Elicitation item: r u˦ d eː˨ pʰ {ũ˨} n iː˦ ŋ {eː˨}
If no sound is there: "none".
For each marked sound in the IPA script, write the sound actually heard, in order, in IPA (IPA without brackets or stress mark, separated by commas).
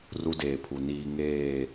u˨, eː˦˨